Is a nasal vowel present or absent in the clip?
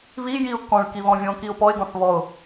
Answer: present